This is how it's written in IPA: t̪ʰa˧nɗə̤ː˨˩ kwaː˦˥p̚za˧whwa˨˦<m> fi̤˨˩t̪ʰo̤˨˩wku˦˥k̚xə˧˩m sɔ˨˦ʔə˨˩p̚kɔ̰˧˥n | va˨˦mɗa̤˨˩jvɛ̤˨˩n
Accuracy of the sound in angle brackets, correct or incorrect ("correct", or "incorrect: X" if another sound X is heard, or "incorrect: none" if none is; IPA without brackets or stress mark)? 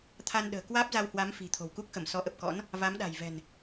correct